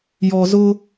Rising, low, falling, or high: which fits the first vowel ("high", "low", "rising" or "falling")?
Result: low